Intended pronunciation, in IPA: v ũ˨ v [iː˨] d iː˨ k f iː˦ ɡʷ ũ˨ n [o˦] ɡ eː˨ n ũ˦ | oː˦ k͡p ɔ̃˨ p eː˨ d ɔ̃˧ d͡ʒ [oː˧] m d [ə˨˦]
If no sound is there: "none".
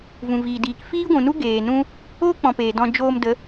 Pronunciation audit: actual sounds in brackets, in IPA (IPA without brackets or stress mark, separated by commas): iː˨, u˦, oː˧, ə˨˦